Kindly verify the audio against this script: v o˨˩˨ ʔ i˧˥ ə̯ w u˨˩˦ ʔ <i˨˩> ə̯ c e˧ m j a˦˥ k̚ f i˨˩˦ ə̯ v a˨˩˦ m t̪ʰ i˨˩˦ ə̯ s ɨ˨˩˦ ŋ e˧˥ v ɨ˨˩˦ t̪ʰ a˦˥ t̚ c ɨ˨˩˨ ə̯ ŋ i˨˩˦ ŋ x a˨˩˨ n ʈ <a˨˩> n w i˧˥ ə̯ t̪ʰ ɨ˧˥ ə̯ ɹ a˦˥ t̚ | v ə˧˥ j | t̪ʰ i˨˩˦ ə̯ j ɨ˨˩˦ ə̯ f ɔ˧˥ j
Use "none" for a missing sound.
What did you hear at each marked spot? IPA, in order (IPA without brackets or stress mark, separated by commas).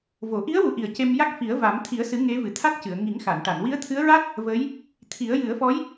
i˨˩, a˨˩˨